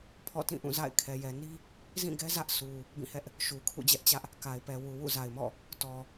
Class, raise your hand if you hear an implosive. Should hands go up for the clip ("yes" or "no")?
no